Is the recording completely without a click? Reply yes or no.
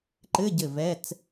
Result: no